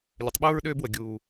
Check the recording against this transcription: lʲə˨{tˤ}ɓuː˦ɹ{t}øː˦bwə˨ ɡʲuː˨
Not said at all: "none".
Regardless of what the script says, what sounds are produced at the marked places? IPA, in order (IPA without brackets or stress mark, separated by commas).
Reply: tˤ, ɗ